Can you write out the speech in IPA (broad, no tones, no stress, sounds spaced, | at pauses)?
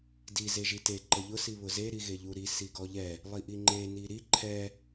d i z e ʒ i t e ǃ ə ʎ ʊ s i β ʊ z e ɾ i ɣ e ʎ u ɾ i s i ɡ ɔ ʎ ɛ | lˠ i ʔ i ŋ͡ǃ e n i ɾ i ǃʰ ɛ